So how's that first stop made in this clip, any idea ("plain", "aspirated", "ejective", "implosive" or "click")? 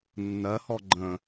click